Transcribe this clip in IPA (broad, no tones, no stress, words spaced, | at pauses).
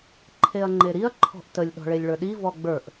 ǃʰeɐ̯ŋ͡ǃeɾiɐ̯ ǃʰɔ̤ʔtəlʲ ɗɔ̤ɭelʲɭə˞ɗi vɔɡ͡bə˞ʔ